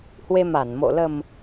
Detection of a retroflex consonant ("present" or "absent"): absent